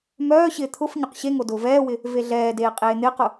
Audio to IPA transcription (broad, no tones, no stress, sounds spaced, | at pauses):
m œː ɕ ɪː t̪ʰ ʊ f ɲ ʊ q ɕ e ŋ o d ʊː v ɛː w ɪ | v e ɮ ɛː d eː qʼ eː n̪ ɪː q ʊ